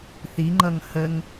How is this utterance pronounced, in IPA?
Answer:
θ i ŋ͡ǃ ʌ ŋ h ə ŋ

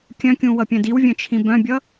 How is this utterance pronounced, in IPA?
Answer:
kʲ œ̃ kʲ ũ w ʌ pʲ œ̃ d i w vʲ œ̃ t͡ʃʰ ĩ b œ̃ bʲ ʌ

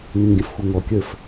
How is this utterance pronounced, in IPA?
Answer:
ŋ ɛ̃ ŋ ɡʲ ə̃ f xʷ ʌ ŋ ɔ kʲ ə˞ f

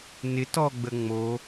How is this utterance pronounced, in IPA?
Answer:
n ɪ t ɔ ɡ͡b ə ŋ͡m o

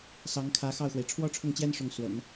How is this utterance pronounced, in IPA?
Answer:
s ɑ˧˥ ŋ kʰ ä˧˥ x ɑ˥˩ ʊ̯ x w e˩ ɪ̯ ʈ͡ʂʰ w ɔ˥ ʈ͡ʂʰ ʊ˥˩ ŋ t͡ɕ j ɛ˥ n ʂ ʊ˥˩ ŋ s w ə̰˨˩˦ n

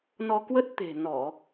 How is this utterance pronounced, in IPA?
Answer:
n ɔ˧ k w ə˦˥ t̚ t̪ e̤˨˩ n ɔ˧˩˨

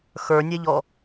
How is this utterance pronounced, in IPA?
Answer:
x ə˞ nʲ ɛ ʎ ɔ

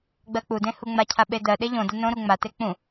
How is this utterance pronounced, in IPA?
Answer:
ɡ͡b ɜ k͡p u d ẽ h u ŋ͡m a cʰ a ɓ e d ɜ ɗ e ʎ õ d a n õ ɾ u ŋ͡m a t e k͡p ũ

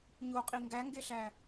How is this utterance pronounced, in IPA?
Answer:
ɲ o qʼ i ŋ ɡ æ ŋ ɡ e ɬ æ

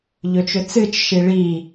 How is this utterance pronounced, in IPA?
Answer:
ʎ ɵ t͡ʃ ɵ t͡s ɨ t͡ʃ ʃ i ɭ i

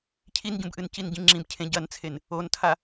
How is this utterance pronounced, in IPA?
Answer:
cʰ i n ɟ ũ b ʔ ɨ n c i n ɟ ĩ ŋ͡ǁ ĩ b cʰ ẽ ɟ ɐ n t͡sʰ e n | o n tʰ a

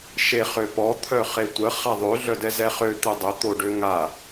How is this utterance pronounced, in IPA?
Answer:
ʃ e χ ø p ɔ t̪ʰ œ χ e tʷ ə χ a ðˤ ø ɮ œ d ɛ z ɛ χ ø t̪ ə dˤ ə t̪ o ɖ ø ŋ a

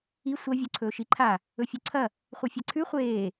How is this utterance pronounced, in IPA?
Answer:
i sʷ ɐ vʲ o ǀʰ ɵː ʃ i ǃʰ a | ɵ fʲ u ǀʰ ɐ | χʷ ɨ fʲ a ǀʰ ʉ χʷ eː

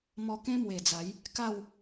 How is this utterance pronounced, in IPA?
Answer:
m ɔ˧ k ẽ˦ m w e˨˩ d͡z a˨˦ j | k a˥˧ w

